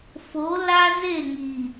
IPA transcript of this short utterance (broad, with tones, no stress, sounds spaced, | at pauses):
f o˨˦ l a˦ z e˦˨ ŋ i˨